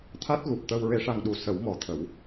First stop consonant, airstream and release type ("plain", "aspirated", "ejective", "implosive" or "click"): aspirated